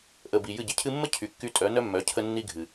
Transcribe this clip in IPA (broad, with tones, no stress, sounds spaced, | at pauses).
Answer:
ʔ ə˨ b i˨ j ɨ˦˨ ɟ ɪ˧ cʰ ɨ˧ mː ə˦ cʰ y˨ kː y˧ tʼ œ˨˦ n œ˦ mː œ˨˦ cʰ ə˦ nː i˦ ɡʱ ɨ˨